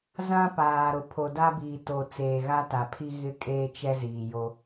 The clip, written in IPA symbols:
z ã˦ p aː˨ ɾ ʊ˨ pʰ o˨ d a˦ b iː˨ t o˨ t͡s eː˨ ɣ a˦ t a˨ pʰ i˦ ɣ ɪ˦ kʼ eː˦ t͡ʃ ɛ˦ z iː˨ j o˦

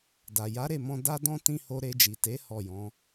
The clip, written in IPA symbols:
d a˨ j a˨˦ ɾ e˦˨ m ɔ̃˧ d a˦ d ɔ̃˦ t ĩ˦ h o˧ ɾ e˧ d͡ʒ i˨ t e˨˦ h ɔ˦˨ j ɔ̃˨˦

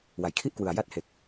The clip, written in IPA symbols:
w a˩˦ j kʰ i˥˩ ʔ k w ɯ˨˩ a̯ j a˦˥ t̚ h e˨˩ k̚

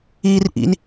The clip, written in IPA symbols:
iː r ʔ ḭ n

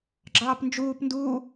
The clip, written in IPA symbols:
ɡ͡ǁ ɑː p n d͡ʒ uː p n d uː

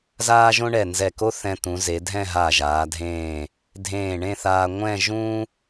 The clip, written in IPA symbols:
z aː˥ ʒ õ˥ ɳ ɛ˧˩ n z ɛ˧˩ k o˥ θ ɛ̃˧ t̪ ũ˩˧ z e˩˧ dʱ ɛ̃˥˧ ɦ a˧˩ ʒ aː˩˧ dʱ ẽː˧˩ | dʱ ẽː˧˩ ɳ ẽ˥˧ θ aː˧ ŋʷ ɛ̃˥˧ ʒ ũ˥

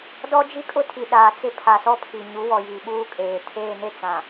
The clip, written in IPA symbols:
d ɔ˦ d͡ʒ i˦ kʼ ʊ˦ tʰ i˨ ɗ aː˨ t͡s ɪ˦ pʰ a˨ s ɔ˦ pʰ i˨ ɲ u˨˦ w ɔ˨ j iː˨ ɓ uː˦ kʼ eː˨ tʰ eː˦˨ n e˦ t͡s ã˨

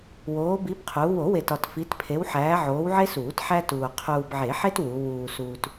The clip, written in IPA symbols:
w oː˨˦ b i˨˦ b qʰ uː˨˦ w o˨˩˦ w e˨ t ɒ˨ t f i˨˦ t pʰ e˨˦ w ħ æː˨˦ ʕ oː˨˦ w ʕ e˦ s uː˨˩˦ t ħ æ˦ t uː˨ qʰ uː˨ b ʕ e˨˩˦ ħ e˦ t w u˨˦ w uː˨ s uː˨ t

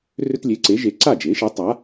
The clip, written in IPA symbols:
r ʏ˦ t lʲ e˩˥ ǀ e˩˥ ʒ e˩˥ ǀ a˥˩ d͡ʒ e˩˥ ʃ e˩˥ tˤ a˩˥

